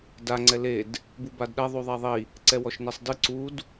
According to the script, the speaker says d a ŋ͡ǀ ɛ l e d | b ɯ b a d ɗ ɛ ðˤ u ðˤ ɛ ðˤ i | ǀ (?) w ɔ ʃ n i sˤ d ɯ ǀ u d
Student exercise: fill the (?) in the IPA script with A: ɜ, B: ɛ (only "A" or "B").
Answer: B